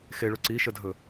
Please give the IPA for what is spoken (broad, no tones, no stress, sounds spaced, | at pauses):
x e ɭ ɵ ǀ i ʃ ə dʱ ɵ